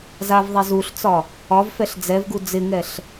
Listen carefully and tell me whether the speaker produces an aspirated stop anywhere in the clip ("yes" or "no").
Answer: no